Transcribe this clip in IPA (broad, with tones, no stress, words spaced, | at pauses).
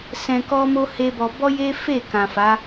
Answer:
sɛ̃˧kɔ˦mo˦ he˦bɔ˧ bɔ˦je˦fe˦˨kã˨ fa˨˦